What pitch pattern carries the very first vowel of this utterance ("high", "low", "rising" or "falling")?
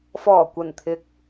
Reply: low